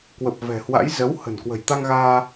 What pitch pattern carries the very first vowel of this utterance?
low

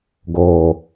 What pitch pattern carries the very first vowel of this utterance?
low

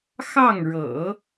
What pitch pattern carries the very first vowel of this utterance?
falling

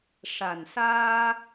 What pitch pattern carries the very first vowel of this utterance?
low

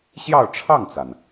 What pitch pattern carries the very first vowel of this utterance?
falling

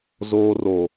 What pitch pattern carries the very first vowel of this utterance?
high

